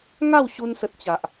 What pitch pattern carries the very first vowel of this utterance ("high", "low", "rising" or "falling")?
falling